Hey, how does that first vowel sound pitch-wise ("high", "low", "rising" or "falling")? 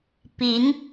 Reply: rising